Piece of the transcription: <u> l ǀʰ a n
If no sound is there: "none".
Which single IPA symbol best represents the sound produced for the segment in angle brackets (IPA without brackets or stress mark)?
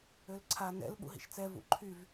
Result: ø